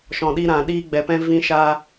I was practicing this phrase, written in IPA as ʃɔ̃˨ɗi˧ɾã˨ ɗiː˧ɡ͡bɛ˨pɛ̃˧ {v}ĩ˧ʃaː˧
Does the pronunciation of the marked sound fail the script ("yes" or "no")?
no